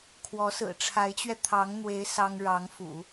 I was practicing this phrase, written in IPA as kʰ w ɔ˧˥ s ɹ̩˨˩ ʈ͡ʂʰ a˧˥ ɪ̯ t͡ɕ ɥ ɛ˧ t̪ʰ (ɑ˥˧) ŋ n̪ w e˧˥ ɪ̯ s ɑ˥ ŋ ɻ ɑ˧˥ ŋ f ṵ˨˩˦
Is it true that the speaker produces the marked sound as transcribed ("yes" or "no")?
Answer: no